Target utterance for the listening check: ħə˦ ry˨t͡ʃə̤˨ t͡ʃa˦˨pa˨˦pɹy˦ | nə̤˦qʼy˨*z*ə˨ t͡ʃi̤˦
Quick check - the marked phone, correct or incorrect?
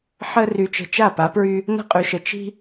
incorrect